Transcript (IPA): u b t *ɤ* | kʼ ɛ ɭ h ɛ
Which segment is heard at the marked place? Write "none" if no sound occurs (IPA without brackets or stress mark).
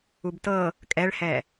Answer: ɤ